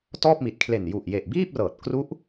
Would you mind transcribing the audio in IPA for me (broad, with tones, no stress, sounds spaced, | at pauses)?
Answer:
t ɔː˥˩ p̚ m i˨˩ t̚ kʰ l e˨˩ n j u˨˩ ʔ j e˨˩ ʔ b iː˥˩ p̚ r ɤː˨˩ t̚ k r u˦˥ ʔ